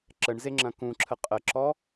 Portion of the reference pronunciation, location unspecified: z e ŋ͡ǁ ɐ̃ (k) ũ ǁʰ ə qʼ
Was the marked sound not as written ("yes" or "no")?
no